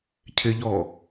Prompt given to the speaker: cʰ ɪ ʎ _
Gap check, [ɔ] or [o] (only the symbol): ɔ